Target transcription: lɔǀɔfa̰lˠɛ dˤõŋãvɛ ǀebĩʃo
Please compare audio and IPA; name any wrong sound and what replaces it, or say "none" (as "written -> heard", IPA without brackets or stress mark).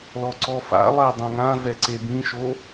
none